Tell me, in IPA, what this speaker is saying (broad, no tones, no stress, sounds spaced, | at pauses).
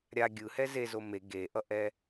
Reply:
ɾʲ a ɡʲ ɯ h ɛ z e z o m e ɡ e ʔ ʌ ʔ ɛ